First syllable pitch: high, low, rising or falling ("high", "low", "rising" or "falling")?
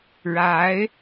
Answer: rising